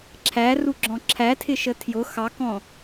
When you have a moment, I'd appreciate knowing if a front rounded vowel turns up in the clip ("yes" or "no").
no